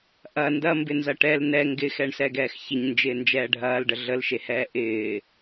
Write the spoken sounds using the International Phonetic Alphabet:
ʔ ɐ n d ɐ m b ɪ n z ɐ ʈ ɛ l n ɛ ŋ ɡ ɪ x ɛ ɳ s ɛ ɡ ɛː x ç ɪ ɲ n d͡ʒ ɪː n d͡ʒ ɛː ɖʱ ɐː l ɖ ə ɮ ə l ʃ e h ɛː ʔ ɪː

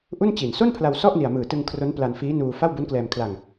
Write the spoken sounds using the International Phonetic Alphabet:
ʔ u˥˩ n t͡ɕ i˨˩ n s o˥˩ n pʰ l a˧ w s ɔ˥˩ ʔ n i˨˩ a̯ m ɯː˨˩ t ɯ˧ ŋ kʰ r o˦˥ n p l a˧ n f iː˦˥ n uː˧ f a˥˩ w b u˦˥ n k l ɛː˧ m kʰ l a˧ ŋ

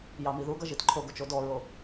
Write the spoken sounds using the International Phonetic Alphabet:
j ɑ m i ð u ɡ ʌ ʒ i t ǃʰ o ɡ o t͡ʃ o d ɔ ɹ o

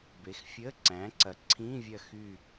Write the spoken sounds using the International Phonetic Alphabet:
b e˩˥ x fʲ əː˧˥˧ ǀ æ̃ː˩˥ ǀ ɐ˩˥ ǀʰ ĩː˧˥˧ vʲ ɐ˦˨ x yː˦˨

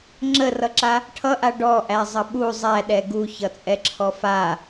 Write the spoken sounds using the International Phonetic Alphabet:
ŋ͡ǁ ə r ʌ ǁ a | ʈʰ ʌ ʔ a ɖ ɔ ʔ æ zˤ ʌ ɓ u zˤ æ ɗ ɛ ɡ u ç ʌ t͡sʼ ɛ ǁʰ ɔ f a

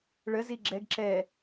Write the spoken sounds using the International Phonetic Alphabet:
ɭ ə z i ɡ͡ǁ ɛ ɡ ǁ ɛ

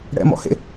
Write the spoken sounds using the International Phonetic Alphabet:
ɽ ɛ̰ m ɔ̰ h ḛ

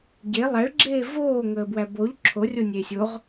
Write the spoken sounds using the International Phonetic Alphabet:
ɟ e lˠ æ ɭ ɡ͡ǁ eː v oː ŋ əː b w æ b o ʎ ǁʰ o rʲ o nʲ eː sʲ o ʁ

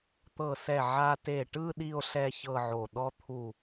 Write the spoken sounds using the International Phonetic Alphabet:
t̪ ɤ˧˩ s ɛ˧˩ ʕ a˧ t e˧˩ ʈ ɯ˥˧ ɗ i˥˧ o̯ ɬ ɛ˥˧ ç ɤ˥˧ ʕ o˧˩ ɗ ɔ˥ t̪ʰ u˥˧

